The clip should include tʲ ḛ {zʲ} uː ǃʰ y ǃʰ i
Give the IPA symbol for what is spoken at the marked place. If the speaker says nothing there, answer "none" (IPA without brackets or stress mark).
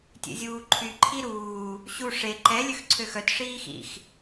zʲ